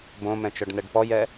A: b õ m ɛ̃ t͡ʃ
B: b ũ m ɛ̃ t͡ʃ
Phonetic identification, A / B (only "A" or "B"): A